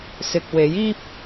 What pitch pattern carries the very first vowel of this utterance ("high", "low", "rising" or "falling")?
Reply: low